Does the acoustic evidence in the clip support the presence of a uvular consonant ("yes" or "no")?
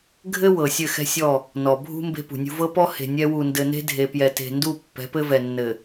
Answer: no